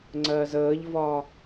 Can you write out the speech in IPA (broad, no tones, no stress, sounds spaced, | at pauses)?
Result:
ŋ͡ǀ ɜ z əː ʎ v ɒ